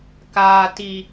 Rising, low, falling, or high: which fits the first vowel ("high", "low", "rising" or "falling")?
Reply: low